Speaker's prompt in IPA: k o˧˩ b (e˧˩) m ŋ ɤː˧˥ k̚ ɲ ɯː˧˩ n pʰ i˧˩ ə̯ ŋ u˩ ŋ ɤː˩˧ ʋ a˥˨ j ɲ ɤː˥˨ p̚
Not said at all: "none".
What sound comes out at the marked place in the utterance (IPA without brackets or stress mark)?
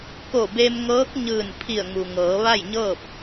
e˧